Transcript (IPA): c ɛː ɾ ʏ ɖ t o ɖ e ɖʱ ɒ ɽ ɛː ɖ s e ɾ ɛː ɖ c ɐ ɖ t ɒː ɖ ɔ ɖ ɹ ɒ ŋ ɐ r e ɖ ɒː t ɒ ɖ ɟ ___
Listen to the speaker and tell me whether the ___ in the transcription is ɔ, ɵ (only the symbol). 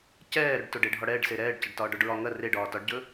ɵ